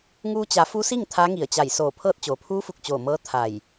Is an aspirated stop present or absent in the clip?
present